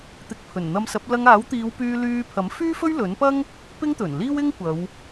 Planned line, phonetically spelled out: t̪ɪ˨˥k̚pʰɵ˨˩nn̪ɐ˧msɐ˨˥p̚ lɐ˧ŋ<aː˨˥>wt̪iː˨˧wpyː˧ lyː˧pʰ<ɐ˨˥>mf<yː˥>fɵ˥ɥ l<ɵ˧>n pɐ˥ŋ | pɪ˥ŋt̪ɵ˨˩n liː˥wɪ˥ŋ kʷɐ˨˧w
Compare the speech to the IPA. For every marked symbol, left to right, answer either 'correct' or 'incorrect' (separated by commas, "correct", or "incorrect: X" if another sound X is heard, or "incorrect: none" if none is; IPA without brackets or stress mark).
correct, correct, correct, incorrect: ɵ˨˥